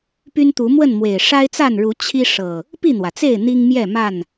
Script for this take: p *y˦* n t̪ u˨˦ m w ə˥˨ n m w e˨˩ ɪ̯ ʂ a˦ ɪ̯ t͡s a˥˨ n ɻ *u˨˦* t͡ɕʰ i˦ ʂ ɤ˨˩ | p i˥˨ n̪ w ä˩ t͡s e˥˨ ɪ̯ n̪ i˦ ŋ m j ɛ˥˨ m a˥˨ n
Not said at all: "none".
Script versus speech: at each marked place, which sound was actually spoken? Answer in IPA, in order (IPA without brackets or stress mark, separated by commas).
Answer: y˦, u˨˦